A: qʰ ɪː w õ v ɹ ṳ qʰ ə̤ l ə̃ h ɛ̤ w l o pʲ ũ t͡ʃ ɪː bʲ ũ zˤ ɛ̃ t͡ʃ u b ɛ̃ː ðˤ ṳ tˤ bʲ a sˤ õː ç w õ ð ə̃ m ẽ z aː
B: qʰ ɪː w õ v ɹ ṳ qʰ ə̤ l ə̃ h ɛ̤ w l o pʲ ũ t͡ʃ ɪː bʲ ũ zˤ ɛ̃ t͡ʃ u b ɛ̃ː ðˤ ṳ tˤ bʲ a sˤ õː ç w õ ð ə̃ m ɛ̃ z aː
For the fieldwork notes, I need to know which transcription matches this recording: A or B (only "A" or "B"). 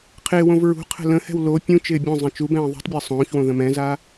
B